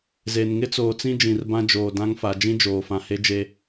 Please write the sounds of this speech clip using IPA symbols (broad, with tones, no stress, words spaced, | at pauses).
ze˨n ŋɪ˦t͡soː˨t͡sĩ˦ d͡ʒĩ˨rbã˦d͡ʒoː˨ dã˦ŋfa˨ d͡ʒĩ˦d͡ʒoː˨fã˨he˦ d͡ʒe˦